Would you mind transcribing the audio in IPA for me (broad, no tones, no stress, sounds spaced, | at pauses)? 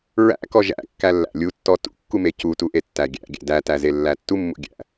ɹ æ̰ k ɔ ʒ æ̰ kː æ lː æ̰ lʲ u tː ɔ t ṵ kː u m e c u t u ʔ e tː æ ɡʲ æ̰ ɡʲ æ̰ d æ t æ z e lː æ tː u mː ṵ ɡʲ æ̰